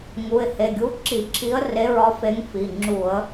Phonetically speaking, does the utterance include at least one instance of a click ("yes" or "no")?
yes